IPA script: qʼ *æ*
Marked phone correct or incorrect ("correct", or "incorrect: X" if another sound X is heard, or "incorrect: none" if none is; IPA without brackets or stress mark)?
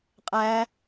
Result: incorrect: æː